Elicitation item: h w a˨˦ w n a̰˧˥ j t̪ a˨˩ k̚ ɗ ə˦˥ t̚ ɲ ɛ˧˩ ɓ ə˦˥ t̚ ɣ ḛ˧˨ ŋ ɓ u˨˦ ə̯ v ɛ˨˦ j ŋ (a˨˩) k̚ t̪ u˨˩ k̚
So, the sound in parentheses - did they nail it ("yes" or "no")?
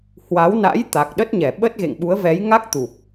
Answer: no